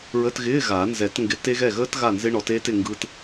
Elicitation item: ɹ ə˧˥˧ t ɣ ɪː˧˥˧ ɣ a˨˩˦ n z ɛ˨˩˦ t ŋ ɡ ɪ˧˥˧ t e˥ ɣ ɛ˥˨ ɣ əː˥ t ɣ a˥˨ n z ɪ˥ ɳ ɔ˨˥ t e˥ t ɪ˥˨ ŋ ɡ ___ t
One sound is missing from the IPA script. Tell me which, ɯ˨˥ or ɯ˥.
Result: ɯ˥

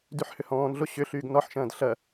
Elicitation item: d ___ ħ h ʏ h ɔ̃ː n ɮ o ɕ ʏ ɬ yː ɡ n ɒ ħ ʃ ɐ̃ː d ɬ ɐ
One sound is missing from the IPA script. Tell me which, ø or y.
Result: y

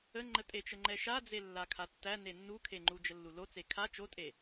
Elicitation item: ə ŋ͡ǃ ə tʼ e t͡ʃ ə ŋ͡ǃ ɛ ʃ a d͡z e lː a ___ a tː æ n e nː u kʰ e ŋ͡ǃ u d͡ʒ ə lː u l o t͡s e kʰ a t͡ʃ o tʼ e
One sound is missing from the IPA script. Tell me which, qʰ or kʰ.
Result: kʰ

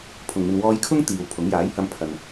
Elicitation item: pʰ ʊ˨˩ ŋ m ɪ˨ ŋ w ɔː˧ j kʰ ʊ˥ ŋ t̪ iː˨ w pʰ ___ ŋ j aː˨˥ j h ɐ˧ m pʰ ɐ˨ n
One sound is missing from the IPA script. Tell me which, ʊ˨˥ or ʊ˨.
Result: ʊ˨˥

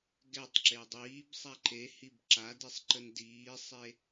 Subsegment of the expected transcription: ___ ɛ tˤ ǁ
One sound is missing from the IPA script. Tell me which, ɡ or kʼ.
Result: ɡ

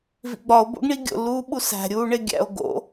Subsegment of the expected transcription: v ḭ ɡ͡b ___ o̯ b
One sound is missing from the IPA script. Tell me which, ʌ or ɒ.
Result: ɒ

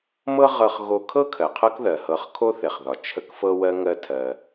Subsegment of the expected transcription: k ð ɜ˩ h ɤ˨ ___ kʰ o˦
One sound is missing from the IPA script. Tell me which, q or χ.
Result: χ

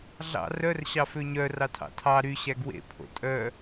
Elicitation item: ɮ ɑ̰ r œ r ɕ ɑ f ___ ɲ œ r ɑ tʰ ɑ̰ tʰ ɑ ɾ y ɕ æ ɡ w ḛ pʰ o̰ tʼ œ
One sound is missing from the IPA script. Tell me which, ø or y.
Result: ø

